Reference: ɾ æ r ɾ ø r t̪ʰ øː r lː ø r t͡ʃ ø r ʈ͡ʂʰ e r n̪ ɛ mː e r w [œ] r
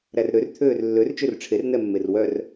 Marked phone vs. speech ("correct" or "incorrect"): correct